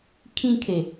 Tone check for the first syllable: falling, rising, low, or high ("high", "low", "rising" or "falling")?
high